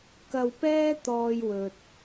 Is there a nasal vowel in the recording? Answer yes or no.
no